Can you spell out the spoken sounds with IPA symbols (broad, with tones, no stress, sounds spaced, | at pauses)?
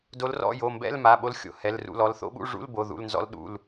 d o˧˥ l r ɔ̰˧˥˧ j o˩˧˩ m b ɛ̰˧˥˧ l m a˩˧˩ ɓ o˧˥ l xʲ o̰˩˧˩ h ɛ˩˧˩ l r ṵ˩˧˩ l ɔ˩˧˩ l θ o̰˧˥ ɓ ṵ˧˥˧ ʐ ṵ˧˥˧ l b o˩˧˩ ð ṵ˩˧˩ l n z ɔ̰˧˥ l ɗ ṵ˩˧˩ l